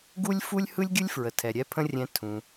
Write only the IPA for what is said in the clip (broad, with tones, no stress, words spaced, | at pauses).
ɡu˥lʲfu˥lʲ hɯ˥lʲɡʲɯ˥lʲfɹə˩ tʰɛ˩ɾʲɛ˥pʰə̃˥rʲɛ̃˧ tʰũ˩